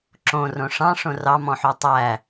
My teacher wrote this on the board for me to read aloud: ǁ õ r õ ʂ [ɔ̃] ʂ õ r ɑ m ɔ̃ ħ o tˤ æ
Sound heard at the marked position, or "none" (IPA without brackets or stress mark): ɑ̃